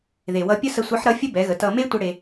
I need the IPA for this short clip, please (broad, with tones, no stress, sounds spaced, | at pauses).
ð e˩ w ʌ˧ pʲ ə˥ s ə˧ sʷ ʌ˧˥ ħ ɾ ʌ˧˥ fʲ ə˥ b ɛ˩˧ ɣ ə˩˧ t ʌ˧ m e˥ tʷ ə˧ ɽ e˧